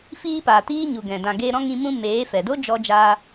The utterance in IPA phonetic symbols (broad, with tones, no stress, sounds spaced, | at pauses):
f iː˦ p aː˨ t iː˦ ɲ u˨ ɡ ɛ̃˨ d ã˨ ɡ eː˧ ɾ ɔ̃˦ ŋ ĩ˧ m ũ˦ m eː˨˦ f ɛ˨ d o˦ d͡ʒ ɔ˧ d͡ʒ aː˧